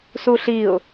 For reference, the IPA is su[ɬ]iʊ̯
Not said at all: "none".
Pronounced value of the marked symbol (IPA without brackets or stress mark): ɬ